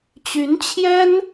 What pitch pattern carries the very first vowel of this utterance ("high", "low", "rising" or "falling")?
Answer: rising